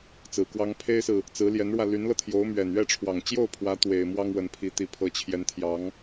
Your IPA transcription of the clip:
t͡s ɹ̩˨˩ k w ɑ˥ ŋ pʰ e˥ ɪ̯ s ɹ̩˨ | t͡s ɹ̩˧˥ l j ɛ˧˥ n ɻ w ä˧ l y˧˥ n l ɤ˧ t̪ʰ j o˧˥ ʊ̯ m ɥ ɛ˨˩ n ɥ ɛ˥˩ ʈ͡ʂʰ w ɑ˨˩ ŋ t͡ɕ j o˥˩ ʊ̯ pʰ w ä˧˥ t̪ w e˨˩ ɪ̯ m w ɑ˥ ŋ w ə˧˥ n pʰ i˧˥ t̪ i˨˩ pʰ ɤ˧˥ t͡ɕʰ j ɛ˧˥ n t̪ʰ j ɑ˧˥ ŋ

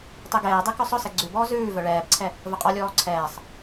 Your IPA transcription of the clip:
tˤ e ɡ ɛː dˤ e k œ sˤ œ s ɛ ɡ͡ǀ ʉ b ɔː z ʉː v œ ɭ ɛː b ǀʰ ɛ | v ə qʼ ɔ lʲ ɔː ǀʰ ɛː sˤ

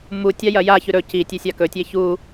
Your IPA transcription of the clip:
m u tʲ a j ɐ j a ç ʉ ɾ ɵ c i tʲ e sʲ a k ɵ tʲ e ç u

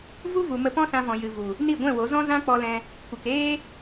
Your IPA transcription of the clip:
v u˦ v u˨ m ə˧ p ɔ̃˦ s ã˧ v ɔ̃˨ j ɨ˨ v u˨ | n i˦˨ ɡʷ ɛ̃˦˨ w o˨˦ z ɔ̃˦ z ã˦ k͡p ɔ˧ l ɛ̃˧ | kʷ ɨ˨ k eː˦

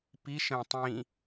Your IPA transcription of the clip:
p i ʃ ə̃ː tˤ ĩ

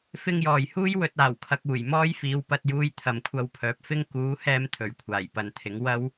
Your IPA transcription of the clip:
f ɪ˥ ŋ j ɔː˨ j h uː˥ j w ɵ˧ t̚ aː˨˩ w kʰ ɐ˧ k̚ uː˨˩ j m ɔː˥ j f iː˨˧ w p ɐ˧ t̚ j uː˧ j t̪ʰ ɐ˨ m kʷʰ ɐ˧ w pʰ œː˨˥ p̚ f ɪ˥ ŋ k uː˨˥ h ɛː˧ m t̪ʰ ɵ˨˩ ɥ kʷʰ aː˨˩ j p ɐ˨˧ n t̪ʰ ɪ˨˥ ŋ w ɐ˥ w

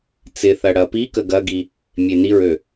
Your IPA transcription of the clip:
t͡s ɪ θ ɐ ɽ ɐ p i k ə ɡ ɐ ɡ i | mʲ e n i ɹ ø

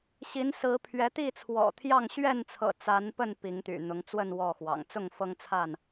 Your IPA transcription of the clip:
ɕ i˨˦ n s ɹ̩˨˦ pʰ ɥ ɛ˨˦ t̪ i˥˨ t͡sʰ w ɔ̰˨˩ t̪ʰ j ɑ˥˨ ŋ ɕ ɥ ɛ˥˨ n t͡sʰ ɤ̰˨˩ t͡s a˨˦ n p ə˥˨ n p i˨˦ ŋ t̪ y̰˨˩ n̪ ʊ˨˦ ŋ t͡s w ə˥˨ n w ɔ˥˨ x w ɑ̰˨˩ ŋ t͡s ʊ˥˨ ŋ f ɤ˦ ŋ t͡sʰ a˥˨ n

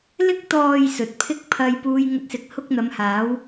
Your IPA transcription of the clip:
l ɪ˧ k̚ t̪ ɔː˨ j s ɵ˨ t̚ pʰ ɪ˥ k̚ pʰ ɐ˧ j p uː˧ j ŋ ɵ˧ t̚ s ɪ˨˥ k̚ h ʊ˥ k̚ n̪ ɐ˨˧ m h aː˨˥ w

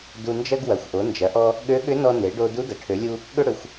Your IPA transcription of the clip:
d u˧ n d͡ʒ ɐ˥ ɡ w ɐ˩˧ xʷ ʔ o˩˧ n d͡ʒ ɐ˩˧ ʔ ɔ˧ | ɠ ø˧˥ ɠ ʏ˧˥ n ɔ˧ n e˩˧ ɖ o˧ d u˧˥ d ɐ˩ ʈʰ ø˩˧ lʲ u˧ | ɠ ʏ˥ ɽ ʏ˩˧ xʷ

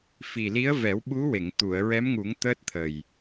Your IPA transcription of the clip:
f i˨˩ l i˧˥ ə̯ v ɛ˨˩˦ w ɓ u˧˥ w e˨˩˨ ŋ t̪ u˨˩˨ ə̯ ɹ ɛ˧˥ m ŋ u˨˩˦ ŋ t̪ əː˦˥ t̚ t̪ʰ ə˨˩ j

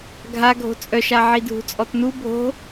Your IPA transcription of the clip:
ɡʱ a ɡʱ o̤ t͡sʼ œ ʃ a ʕ i dʱ ṳ t͡sʼ ɔ t n u bʱ o̤

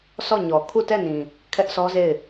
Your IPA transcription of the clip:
s ɔ˦˨ ɲ ɔ˨ kʰ u˦˨ t ɛ˦˨ n ĩ˨ | kʰ ɛ˦ ʔ sʰ ɔ˦ z e˦˨ ɪ̯

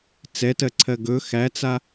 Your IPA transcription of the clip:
t͡s ɛ t ɜ ǀʰ ɜ ɡ ɵ x æ t͡s a

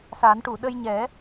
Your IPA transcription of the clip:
s a˨˩˦ n ʈ u˨˩˨ ɗ ə˧ j ɲ ɛ˨˩˦

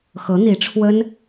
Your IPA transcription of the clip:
x ɤ˧˥ n̪ i˧˥ ʈ͡ʂʰ w ə˥ n

